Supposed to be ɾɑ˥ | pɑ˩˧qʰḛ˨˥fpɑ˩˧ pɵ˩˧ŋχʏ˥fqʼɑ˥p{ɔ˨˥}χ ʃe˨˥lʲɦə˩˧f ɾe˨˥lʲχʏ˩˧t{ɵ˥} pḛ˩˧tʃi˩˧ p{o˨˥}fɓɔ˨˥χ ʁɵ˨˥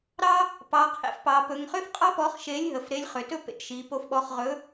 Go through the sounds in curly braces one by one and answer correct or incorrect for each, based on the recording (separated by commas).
correct, correct, correct